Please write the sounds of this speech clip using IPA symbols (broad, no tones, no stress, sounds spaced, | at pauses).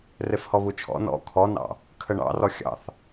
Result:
r e f h ɔ β u t͡ʃʰ ɔ̰ n ɔ̰ kʰ ɔ n ɑ̰ | kʰ ə ɳ ɑ̰ r ɔ xʲ ɑ̰ θ